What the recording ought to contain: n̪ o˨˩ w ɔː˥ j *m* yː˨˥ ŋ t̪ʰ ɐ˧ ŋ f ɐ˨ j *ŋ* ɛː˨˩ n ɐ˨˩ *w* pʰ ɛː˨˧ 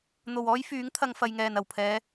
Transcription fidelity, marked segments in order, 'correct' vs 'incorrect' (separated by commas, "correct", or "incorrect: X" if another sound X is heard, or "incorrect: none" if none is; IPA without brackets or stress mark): incorrect: f, correct, correct